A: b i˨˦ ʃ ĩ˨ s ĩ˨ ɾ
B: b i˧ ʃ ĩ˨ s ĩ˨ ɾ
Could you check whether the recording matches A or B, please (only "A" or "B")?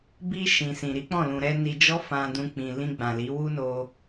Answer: B